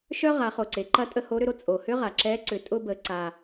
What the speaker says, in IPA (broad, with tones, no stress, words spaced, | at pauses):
ʃœ˥ ʁa˩˧ χo˩ǀe˩˧ǃɐ˧˥tʼə˧ ho˧˥ɾʏ˧ɾo˥ t͡sʼo˩hʏ˥ ʁa˩ǁɛ˧˥ǀʏ˩˧ tʼʊ˧bə˩˧ ǀa˩